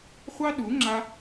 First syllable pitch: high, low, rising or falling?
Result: high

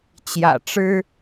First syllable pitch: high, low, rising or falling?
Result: low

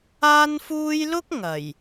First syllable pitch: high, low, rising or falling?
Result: high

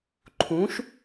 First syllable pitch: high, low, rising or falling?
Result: rising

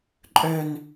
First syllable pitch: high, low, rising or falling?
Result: high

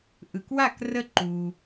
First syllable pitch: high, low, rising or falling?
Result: low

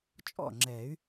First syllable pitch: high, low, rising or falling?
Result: falling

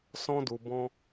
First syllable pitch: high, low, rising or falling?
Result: high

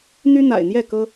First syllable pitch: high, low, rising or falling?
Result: high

